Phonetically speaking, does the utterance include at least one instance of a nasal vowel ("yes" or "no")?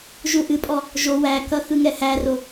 no